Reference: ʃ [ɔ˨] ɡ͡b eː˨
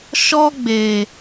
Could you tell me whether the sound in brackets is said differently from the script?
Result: yes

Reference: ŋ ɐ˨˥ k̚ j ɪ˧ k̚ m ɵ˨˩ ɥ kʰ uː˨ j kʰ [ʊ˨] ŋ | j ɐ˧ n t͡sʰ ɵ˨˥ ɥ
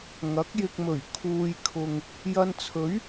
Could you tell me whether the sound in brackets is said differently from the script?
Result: no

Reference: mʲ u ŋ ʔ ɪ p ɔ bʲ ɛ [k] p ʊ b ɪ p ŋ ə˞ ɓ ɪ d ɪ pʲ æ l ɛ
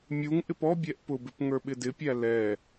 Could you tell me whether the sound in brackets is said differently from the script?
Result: yes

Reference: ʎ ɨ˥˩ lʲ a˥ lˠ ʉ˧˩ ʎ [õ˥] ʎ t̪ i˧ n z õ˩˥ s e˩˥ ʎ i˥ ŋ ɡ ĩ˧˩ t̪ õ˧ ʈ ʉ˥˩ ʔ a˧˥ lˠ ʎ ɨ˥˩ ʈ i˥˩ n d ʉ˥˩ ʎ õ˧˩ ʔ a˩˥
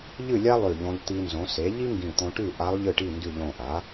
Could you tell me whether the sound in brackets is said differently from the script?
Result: yes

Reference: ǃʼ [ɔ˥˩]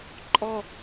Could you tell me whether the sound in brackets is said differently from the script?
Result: yes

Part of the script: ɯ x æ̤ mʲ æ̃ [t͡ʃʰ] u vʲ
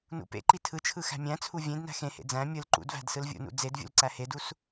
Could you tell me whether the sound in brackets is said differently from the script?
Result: yes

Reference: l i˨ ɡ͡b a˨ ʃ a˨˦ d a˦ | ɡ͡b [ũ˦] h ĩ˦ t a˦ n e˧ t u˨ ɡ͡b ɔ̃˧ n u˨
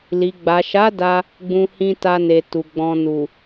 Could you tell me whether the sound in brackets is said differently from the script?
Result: no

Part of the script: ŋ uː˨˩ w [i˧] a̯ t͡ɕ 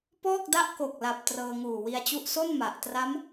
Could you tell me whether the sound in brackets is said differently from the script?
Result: no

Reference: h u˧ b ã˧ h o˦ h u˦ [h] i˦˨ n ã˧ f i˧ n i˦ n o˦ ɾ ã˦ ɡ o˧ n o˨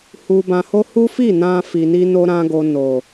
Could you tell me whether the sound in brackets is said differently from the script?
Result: yes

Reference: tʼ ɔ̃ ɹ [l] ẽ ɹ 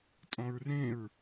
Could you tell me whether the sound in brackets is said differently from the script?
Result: yes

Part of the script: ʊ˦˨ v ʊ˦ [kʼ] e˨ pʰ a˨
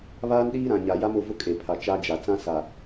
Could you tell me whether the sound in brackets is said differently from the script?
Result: no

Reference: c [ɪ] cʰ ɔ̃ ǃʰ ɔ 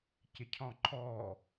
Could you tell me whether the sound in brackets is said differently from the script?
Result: no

